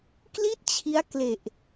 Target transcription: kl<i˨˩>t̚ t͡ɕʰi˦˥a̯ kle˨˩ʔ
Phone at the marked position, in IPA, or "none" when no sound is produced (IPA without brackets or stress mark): i˥˩